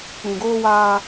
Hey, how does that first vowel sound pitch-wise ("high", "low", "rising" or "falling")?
low